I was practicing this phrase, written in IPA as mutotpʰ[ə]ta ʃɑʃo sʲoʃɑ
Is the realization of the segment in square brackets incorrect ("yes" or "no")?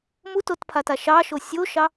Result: yes